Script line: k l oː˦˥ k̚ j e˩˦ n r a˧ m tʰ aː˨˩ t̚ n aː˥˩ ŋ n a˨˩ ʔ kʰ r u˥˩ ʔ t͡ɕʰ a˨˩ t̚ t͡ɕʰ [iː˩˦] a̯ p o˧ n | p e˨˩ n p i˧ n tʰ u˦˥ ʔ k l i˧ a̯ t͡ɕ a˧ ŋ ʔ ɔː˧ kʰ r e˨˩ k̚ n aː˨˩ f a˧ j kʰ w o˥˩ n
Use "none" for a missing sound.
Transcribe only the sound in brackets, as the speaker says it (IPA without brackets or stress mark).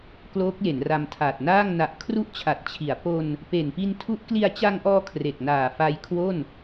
i˩˦